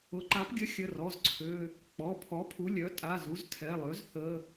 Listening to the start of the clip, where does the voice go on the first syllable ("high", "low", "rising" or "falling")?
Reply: rising